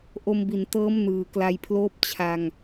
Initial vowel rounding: rounded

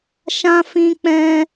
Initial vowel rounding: unrounded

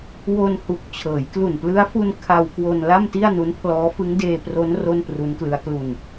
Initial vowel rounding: rounded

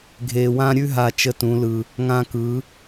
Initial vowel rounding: unrounded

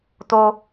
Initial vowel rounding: rounded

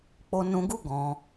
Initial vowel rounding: rounded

